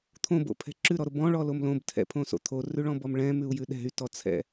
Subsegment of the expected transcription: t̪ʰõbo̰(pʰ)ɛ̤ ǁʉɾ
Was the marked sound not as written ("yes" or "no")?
no